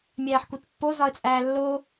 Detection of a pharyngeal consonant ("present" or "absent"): present